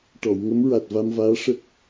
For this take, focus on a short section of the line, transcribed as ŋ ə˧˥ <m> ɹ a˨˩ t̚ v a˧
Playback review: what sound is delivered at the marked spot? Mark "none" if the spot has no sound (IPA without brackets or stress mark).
m